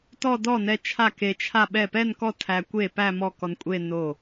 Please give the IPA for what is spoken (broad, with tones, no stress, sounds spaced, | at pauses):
t ɔ˥˧ d ɔ˥˩ n ɛ˧ t͡ʃʰ a˥˩ k e˧ t͡ʃʰ a˥˧ ɓ ɛ˥˩ p ɛ˥˧ n k ɔ˥˩ tʰ æ˧ kʷ e˥˩ p æ˥˧ m ɔ˥˩ k ɔ˧ n kʷʼ e˥˧ n o˥˩